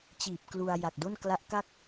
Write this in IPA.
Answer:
t͡ɕ iː˨˩ p̚ k l u˧ a̯ j a˨˩ k̚ d o˥˩ n k l a˦˥ ʔ k a˥˩ k̚

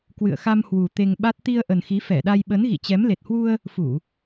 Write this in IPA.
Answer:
k w ɨ̰˧˨ ə̯ x a˧ m h w u˨˩ t̪ e˧ ŋ ɓ a˦˥ t̚ t̪ i˧ ə̯ ʔ ə˨˩ n x i˨˦ f ɛ˧˩ ɗ a˧ j ɓ ə˨˦ n ɣ ḭ˧˨ t͡ɕ ɛ˨˦ m l e˨˩ t̚ h w u˧ ə̯ | f u˧˩˨

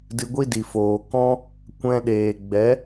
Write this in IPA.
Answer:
d ɨ˧ ɡʷ i˦ d i˨ f oː˨ k ɔ̃˧ | kʷ ɛ̃˧ ɗ eː˨ ɡ͡b ɛ˨˦

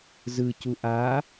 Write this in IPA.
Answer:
z ɯ c u ʔ a

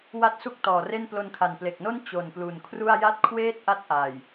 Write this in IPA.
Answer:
w a˥˩ t̚ s u˥˩ k̚ t ɔː˨˩ r e˥˩ n p l o˧ n kʰ a˨˩ n p l e˨˩ k̚ n o˥˩ n t͡ɕ o˨˩ n p l u˨˩ n kʰ r u˥˩ a̯ j a˥˩ t̚ kʰ w eː˥˩ t̚ ʔ a˥˩ t̚ ʔ aː˨˩ j

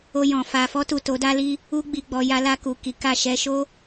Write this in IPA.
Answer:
o˧ j ɔ̃˨ f a˨ f ɔ˧ t u˨ t o˨˦ d a˦ l i˦ | u˧ ɡ͡b i˨ ɡ͡b ɔ˨ j a˧ l a˧ k u˨ k i˨˦ k a˦˨ ʃ ɛ˧ ʃ o˦

